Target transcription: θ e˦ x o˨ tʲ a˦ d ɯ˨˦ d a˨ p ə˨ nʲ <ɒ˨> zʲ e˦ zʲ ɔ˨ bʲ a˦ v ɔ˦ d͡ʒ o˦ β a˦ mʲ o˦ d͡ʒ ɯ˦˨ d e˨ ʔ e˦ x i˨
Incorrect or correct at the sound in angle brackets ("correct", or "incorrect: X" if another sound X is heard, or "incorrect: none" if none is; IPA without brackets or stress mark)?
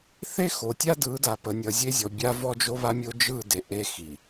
incorrect: ʌ˨